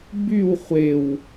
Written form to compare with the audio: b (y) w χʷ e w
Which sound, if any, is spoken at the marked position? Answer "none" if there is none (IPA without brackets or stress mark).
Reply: y